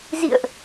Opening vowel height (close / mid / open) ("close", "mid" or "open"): close